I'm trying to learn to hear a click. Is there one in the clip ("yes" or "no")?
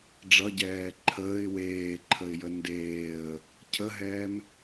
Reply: yes